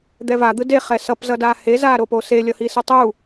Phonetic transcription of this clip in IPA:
d̪ ɛ v a d̪ ɯ d e χ ɛ s ʌ p z ʌ d aː h e z aː ɾ o p o s e lʲ ʌ h i s ɯ tˤ u

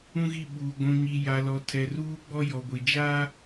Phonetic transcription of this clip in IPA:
ũ˦ ɣ i˦˨ ɓ uː˨ ɡʷ ũ˨ ɲ i˨ j a˨ l ɔ˨ tʰ ɛ˨ r uː˦ ɡ͡b ɔ˦ j ɔ˨ ɡʷ i˨ d͡ʒ aː˦

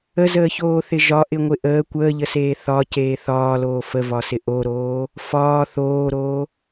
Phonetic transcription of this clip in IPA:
ə z əː ç oː θ ɪ ʒ ɒ ʔ ɪ ŋʷ ɪ ʔ əː kʷ əː ʎ ə s eː θ ɒ c eː θ ɒː l oː f ə v ɒ s ɪ ʔ o ɾ oː | f ɒː θ oː ɾ oː

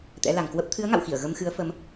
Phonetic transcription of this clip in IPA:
t̪ ɛ̰˧˥ l a˨˩ ŋ k w ə˦˥ p̚ t̪ʰ ɨ˨˦ ə̯ ŋ a̰˧˨ w x i˧˩ ə̯ ɣ ə˧ m x ɨ˨˦ ə̯ f ə˨˦ m

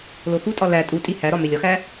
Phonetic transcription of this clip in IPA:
l o x u tʼ ɒ l æ tʼ u tʼ i h æ ɾ ɒ m e lʲ ɒ x æ

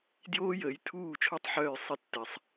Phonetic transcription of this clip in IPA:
d j oː˥ j əː˩˥ j tʰ uː˥˩ t͡ʃʰ o˥˩ tˤ ħ œː˥˩ j sˤ i˧ tː ɛ˩ sˤ

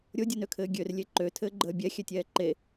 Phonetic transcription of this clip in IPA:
ɾʲ o dʲ u n ø kʰ ɘː ɡʲ ø r lʲ e ǃ ø tʰ ɘː ɡ͡ǃ əː bʲ ɛ xʲ ɛ tʲ ɛː ǃ e

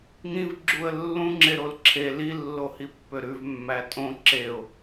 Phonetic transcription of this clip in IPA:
ŋ ĩ v ɡ͡ǁ u ə̯ lː ũ ŋ͡ǁ e ɾ o l ǁʰ e l i lː o h i pː ø ɾ ʉ v mː æ tʼ õ ǁ e ʊ̯

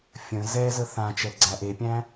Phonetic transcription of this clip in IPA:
fʲ ə̃ z ɛ z ə θ ã t͡ʃ ɛ ɡ͡ǀ æ ʔ e pʲ æ̃

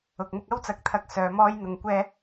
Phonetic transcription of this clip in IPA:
ʊ˨ k̚ m ʊ˥ k̚ ɐ˥ w t͡s ɐ˨˥ k̚ t̪ʰ ɐ˧ k̚ s œː˨˧ m ɔː˥ j n̪ ʊ˧ ŋ kʷ ɛː˥

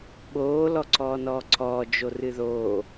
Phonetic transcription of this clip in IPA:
ɓ oː l ɔ ǀʰ ɔː n ɔː ǀʰ ɔː d͡ʒ o r ɨ ð oː

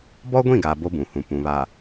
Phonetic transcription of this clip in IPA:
b ɔ˦ ɡʷ ĩ˦˨ ɡ a˨ b o˦ b ũ˨ h ũ˨ p ũ˨ β a˨

